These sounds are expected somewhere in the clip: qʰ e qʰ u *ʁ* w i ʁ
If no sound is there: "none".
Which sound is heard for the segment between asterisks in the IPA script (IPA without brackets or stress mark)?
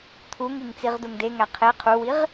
none